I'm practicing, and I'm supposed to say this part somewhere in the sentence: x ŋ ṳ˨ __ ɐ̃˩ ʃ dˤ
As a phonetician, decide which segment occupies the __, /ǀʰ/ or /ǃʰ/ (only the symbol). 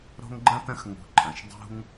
ǃʰ